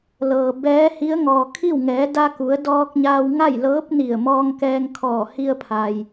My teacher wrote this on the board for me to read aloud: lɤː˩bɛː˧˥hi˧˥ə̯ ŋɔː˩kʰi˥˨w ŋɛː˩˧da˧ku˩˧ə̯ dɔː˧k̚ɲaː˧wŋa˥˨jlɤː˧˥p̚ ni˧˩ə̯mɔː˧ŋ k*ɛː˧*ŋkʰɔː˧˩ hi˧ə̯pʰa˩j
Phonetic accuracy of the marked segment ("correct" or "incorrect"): correct